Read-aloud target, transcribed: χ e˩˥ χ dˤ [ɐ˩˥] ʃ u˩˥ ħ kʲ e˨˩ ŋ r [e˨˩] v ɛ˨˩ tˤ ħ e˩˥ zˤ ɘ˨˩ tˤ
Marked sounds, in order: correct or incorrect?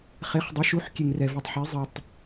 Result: correct, incorrect

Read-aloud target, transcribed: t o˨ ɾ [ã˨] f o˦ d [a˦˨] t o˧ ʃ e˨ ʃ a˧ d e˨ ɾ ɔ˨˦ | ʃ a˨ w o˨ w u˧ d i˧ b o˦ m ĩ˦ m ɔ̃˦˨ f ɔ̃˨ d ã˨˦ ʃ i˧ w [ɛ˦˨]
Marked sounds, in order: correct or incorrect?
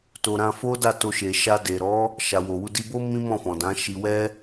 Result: incorrect, correct, incorrect

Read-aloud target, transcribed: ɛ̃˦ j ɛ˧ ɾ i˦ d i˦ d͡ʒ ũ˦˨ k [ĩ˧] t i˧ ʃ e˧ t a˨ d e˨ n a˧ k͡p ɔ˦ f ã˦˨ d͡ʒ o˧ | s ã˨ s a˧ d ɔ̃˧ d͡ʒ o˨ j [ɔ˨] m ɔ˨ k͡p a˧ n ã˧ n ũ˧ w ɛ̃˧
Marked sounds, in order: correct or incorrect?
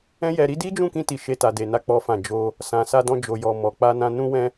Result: correct, correct

